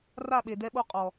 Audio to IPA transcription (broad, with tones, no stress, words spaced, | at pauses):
ra˦˨ɓe˨ dɛ˦ɓo˦ qʼɔ˨